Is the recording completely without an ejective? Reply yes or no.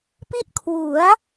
yes